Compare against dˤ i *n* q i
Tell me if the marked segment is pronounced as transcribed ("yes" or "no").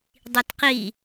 no